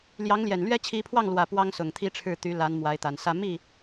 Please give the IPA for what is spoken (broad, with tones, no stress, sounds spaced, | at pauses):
l j ɑ˧˥ ŋ l j ɛ˨˩ n l ɥ ɛ˥ t͡ɕʰ i˧˥ pʰ w ɑ˥˩ ŋ l w ä˨˩ p w ɑ˥ ŋ s ʊ˨˩ ŋ t̪ʰ i˥ ʈ͡ʂʰ ɻ̩˥˩ t̪ y˧˥ l a˧˥ n m w a˧˥ ɪ̯ t̪ a˨˩ n s ä˥ m i˥˩